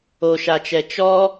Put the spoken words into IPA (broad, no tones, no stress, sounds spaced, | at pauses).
o ʃ a t͡ʃ ɛ t͡ʃ ɔ